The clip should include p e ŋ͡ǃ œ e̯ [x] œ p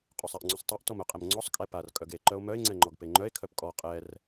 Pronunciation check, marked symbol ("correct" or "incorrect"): incorrect